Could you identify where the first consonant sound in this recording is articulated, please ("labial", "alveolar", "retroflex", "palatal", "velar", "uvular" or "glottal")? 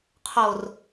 uvular